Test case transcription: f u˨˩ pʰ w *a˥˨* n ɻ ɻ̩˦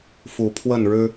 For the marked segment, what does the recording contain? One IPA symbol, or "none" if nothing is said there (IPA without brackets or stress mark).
ə˥˨